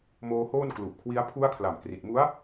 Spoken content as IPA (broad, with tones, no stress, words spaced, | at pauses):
moː˧hoː˥˩nklu˨˩ʔkʰwi˦˥a̯ pʰu˦˥a̯kʰla˨˩mkri˨˩t̚mu˦˥a̯